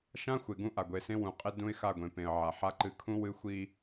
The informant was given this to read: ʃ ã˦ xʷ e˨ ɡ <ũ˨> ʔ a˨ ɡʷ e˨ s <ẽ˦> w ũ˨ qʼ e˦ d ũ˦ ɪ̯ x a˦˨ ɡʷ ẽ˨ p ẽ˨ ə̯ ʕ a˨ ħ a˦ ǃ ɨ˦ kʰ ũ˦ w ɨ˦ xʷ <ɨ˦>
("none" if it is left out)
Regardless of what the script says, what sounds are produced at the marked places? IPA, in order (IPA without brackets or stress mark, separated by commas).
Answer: ũ˦, ẽ˦, i˦